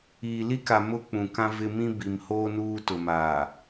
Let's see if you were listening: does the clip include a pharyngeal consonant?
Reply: no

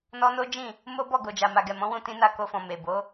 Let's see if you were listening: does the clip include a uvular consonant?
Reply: no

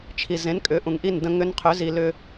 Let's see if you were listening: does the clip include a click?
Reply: no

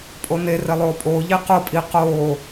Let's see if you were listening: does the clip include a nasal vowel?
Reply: no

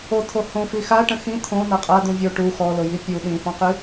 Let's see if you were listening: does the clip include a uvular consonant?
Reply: yes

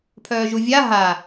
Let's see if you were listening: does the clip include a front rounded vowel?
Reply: yes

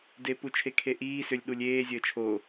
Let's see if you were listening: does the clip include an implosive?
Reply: yes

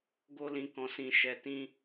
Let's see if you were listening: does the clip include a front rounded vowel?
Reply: no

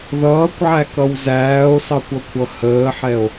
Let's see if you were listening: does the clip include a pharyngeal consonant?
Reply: yes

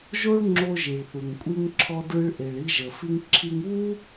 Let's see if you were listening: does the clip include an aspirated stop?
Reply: yes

